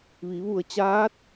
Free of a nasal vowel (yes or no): yes